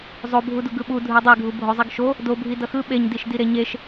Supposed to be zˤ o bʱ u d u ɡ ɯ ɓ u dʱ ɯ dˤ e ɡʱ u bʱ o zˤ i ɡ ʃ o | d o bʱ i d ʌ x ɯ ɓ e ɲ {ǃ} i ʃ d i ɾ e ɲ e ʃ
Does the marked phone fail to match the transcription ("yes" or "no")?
yes